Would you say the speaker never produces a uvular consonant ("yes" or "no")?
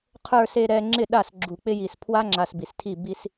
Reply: no